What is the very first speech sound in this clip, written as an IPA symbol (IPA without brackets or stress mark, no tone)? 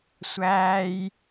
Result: sʷ